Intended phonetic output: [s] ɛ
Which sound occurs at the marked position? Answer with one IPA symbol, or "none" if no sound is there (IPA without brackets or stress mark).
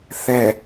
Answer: θ